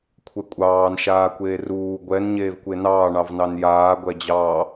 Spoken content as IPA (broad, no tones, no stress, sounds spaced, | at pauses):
kʷʰ ɛ kʷʼ ɑː n ʃ aː kʷ eː r uː ɡʷ ɛ n ɲ eː v kʷ e n ɑː ɳ ɑ v n ɑ n j aː ɡʷ ɛ d͡ʑ ɑ